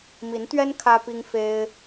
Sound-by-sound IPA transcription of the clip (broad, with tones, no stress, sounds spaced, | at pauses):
m i˨˦ n t̪ ɥ ɛ˦ n kʰ ä˦ p i˦ ŋ f e˦ ɪ̯